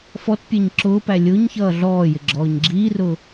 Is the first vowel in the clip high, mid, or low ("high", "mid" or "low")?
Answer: mid